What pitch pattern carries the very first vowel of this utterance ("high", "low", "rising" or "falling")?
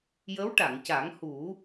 rising